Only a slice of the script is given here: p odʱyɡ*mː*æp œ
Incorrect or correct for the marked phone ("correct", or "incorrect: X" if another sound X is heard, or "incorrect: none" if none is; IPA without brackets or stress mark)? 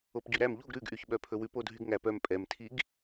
incorrect: ŋ